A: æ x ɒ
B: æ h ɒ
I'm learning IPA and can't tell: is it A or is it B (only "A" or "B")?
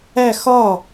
A